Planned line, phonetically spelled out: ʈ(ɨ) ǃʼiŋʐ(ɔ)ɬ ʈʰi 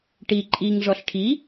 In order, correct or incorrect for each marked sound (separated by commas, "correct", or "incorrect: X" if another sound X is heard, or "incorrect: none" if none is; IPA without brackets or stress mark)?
incorrect: i, correct